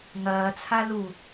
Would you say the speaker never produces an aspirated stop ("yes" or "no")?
no